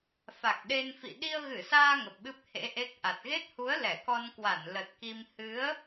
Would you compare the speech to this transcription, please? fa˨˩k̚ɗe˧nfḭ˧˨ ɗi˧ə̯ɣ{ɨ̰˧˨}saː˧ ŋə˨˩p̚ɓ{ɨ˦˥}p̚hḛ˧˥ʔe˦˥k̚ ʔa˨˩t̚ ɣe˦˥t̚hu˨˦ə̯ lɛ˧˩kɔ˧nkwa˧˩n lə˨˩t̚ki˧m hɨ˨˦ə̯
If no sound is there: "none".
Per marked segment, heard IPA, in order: ɨ˧˩, ɨ˦˥

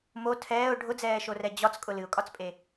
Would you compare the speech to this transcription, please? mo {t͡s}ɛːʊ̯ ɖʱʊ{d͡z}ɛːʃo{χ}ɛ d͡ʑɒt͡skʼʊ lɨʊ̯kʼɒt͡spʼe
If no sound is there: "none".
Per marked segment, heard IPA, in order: tʰ, d͡z, r

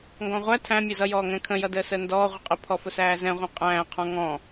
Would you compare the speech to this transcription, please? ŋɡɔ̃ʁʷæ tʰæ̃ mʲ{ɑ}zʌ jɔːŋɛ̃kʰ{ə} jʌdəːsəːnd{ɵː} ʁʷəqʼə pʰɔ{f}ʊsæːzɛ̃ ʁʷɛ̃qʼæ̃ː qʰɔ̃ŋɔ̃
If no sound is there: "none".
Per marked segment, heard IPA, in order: ʌ, ə̃, ɔː, f

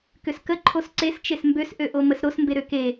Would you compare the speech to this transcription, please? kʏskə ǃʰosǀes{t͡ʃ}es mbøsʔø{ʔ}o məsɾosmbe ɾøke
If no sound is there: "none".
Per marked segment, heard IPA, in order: t͡ʃ, ʔ

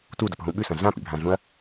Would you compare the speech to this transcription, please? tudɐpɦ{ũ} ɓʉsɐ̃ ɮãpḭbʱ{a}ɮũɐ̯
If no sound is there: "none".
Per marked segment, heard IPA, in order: ũ, ã

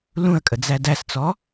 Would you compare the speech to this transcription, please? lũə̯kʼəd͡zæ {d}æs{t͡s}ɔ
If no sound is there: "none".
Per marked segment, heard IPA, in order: d, t͡s

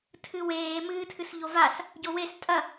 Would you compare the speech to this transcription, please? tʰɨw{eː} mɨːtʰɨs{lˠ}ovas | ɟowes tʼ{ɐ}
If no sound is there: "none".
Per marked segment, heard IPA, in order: eː, ʎ, ɐ

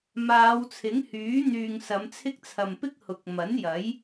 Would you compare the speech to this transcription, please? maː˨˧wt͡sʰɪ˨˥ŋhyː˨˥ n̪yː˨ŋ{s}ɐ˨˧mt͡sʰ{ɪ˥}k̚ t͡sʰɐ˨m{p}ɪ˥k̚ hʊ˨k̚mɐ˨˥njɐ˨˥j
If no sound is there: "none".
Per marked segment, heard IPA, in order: s, ɪ˥, p

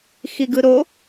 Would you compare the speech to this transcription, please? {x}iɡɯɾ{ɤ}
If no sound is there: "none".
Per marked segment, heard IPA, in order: x, o

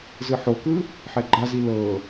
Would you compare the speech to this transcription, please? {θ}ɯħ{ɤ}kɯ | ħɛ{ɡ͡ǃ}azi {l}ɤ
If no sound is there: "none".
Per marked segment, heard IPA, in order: z, o, ɡ͡ǃ, l

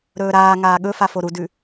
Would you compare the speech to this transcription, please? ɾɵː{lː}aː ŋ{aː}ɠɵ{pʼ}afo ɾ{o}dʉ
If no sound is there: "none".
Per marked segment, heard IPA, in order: ɾ, aː, f, u

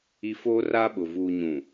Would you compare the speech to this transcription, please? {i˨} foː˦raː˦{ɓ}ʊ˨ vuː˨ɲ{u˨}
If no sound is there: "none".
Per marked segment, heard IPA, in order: i˨, ɓ, ũ˨

